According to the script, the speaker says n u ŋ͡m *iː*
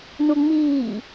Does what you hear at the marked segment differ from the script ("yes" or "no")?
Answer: no